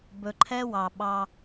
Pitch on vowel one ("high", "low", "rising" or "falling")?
low